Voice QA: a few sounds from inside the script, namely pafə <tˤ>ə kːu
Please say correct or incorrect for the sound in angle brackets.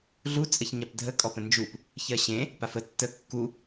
incorrect